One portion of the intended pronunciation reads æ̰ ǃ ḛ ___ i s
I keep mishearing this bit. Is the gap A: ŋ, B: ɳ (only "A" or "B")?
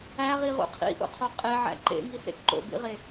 A